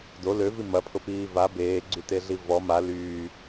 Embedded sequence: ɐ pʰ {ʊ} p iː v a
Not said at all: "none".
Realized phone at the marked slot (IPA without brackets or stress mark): ʊ